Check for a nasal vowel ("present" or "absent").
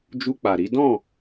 present